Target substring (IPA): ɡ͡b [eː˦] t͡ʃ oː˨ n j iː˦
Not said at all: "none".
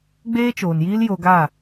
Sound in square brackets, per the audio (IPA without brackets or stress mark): eː˦